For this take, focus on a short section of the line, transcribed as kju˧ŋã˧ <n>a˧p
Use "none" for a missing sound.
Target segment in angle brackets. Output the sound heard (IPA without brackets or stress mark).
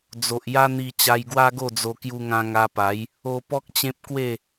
ŋ